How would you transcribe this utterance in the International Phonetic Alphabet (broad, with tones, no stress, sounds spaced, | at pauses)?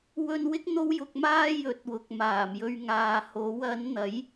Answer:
w ɵ˧ n w ɪ˥ k̚ n̪ o˥ w j ʊ˧ k̚ m aː˥ j ɵ˨˥ t̚ w ʊ˨ k̚ m aː˨˩ m j ɵ˧ ɥ ŋ aː˨ h o˨˥ w ɐ˨˥ n n̪ ɐ˨˥ j